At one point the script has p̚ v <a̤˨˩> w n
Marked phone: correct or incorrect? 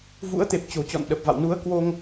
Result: incorrect